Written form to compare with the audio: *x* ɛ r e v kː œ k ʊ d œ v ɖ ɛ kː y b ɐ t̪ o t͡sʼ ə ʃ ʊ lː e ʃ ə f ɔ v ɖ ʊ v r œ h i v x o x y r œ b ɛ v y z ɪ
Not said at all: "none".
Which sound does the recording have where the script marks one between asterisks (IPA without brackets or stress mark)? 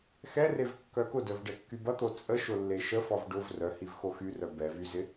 x